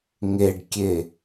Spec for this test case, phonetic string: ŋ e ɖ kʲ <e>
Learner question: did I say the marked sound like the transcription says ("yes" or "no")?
yes